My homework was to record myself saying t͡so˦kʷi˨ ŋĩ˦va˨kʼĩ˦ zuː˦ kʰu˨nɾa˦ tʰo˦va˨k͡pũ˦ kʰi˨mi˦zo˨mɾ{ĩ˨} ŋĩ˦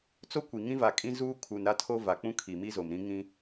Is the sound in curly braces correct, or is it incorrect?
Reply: incorrect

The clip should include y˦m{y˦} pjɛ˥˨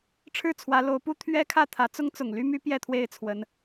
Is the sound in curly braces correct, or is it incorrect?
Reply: correct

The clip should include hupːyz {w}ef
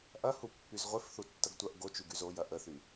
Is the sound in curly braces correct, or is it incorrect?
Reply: incorrect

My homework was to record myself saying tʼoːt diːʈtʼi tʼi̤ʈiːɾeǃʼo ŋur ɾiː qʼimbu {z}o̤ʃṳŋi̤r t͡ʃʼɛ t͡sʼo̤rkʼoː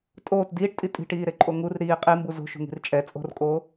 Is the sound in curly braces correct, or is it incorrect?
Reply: correct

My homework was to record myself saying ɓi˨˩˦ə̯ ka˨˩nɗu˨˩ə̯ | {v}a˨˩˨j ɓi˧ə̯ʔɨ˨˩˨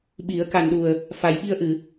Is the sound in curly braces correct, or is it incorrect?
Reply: incorrect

